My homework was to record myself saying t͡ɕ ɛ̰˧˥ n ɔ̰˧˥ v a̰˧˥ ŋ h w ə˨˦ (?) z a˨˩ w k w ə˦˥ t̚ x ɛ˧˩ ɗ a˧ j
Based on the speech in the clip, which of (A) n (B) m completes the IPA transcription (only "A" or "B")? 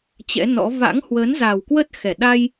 A